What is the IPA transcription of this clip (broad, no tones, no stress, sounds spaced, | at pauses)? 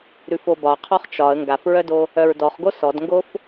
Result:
ɾ ʉ f o b ɒ qʰ ɔ χ t͡ʃ ɒ ə̯ ŋ ɡ a f ɹ œ d o | œ ɹ d ɔ χ ɡ o s ɔ d ŋ ɡ o f